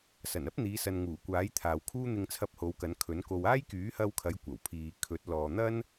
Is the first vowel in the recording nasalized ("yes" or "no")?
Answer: no